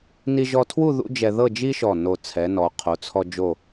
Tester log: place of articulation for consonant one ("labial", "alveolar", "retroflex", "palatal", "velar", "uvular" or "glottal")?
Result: alveolar